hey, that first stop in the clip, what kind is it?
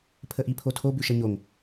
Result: aspirated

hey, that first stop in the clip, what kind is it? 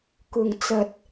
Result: plain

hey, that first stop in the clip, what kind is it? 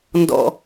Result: plain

